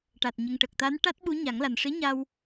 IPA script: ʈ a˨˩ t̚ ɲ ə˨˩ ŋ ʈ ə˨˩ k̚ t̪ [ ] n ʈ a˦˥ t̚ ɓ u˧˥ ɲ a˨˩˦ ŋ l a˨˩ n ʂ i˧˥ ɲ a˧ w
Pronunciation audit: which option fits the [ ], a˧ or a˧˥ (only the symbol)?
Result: a˧˥